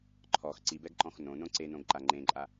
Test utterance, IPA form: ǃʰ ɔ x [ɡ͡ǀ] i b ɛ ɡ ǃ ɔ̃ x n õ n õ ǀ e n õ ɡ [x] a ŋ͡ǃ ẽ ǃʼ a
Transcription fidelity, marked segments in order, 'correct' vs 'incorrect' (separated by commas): incorrect, incorrect